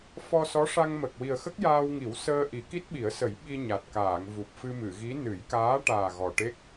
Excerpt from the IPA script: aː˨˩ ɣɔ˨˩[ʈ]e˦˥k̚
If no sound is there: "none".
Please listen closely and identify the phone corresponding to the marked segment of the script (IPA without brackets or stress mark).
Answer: ʈ